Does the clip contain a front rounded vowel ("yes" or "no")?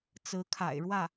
no